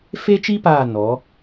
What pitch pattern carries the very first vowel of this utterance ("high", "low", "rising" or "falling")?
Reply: high